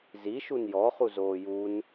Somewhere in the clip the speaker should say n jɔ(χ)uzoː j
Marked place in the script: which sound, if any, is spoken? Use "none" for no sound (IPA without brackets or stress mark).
χ